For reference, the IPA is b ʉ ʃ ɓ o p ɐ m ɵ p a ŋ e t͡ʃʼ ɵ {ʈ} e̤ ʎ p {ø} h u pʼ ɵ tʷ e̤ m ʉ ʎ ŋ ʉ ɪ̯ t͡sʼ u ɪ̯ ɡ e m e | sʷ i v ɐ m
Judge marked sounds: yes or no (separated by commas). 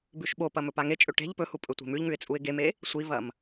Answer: yes, no